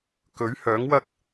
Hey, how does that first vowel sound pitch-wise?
rising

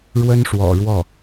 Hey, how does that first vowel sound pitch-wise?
high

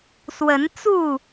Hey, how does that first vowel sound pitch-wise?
rising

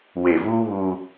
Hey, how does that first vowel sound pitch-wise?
low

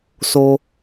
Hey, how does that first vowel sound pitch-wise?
high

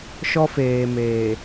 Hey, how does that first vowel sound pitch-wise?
high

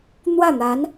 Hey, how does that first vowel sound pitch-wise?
falling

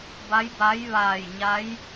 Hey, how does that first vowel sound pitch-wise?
rising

